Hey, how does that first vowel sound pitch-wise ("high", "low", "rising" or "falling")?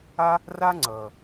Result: high